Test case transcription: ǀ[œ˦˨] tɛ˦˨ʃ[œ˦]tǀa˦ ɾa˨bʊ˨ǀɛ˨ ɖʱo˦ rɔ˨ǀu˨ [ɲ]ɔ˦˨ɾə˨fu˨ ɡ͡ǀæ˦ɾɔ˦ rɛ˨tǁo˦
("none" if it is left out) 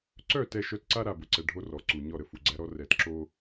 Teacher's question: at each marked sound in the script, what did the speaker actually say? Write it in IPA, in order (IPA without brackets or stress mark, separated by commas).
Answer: œ˦˨, œ˦, ɲ